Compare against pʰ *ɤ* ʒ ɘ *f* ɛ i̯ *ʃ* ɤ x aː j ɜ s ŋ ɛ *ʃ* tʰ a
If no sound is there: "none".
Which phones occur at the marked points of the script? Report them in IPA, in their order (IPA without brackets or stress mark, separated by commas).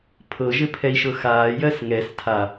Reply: ɤ, pʰ, ʃ, s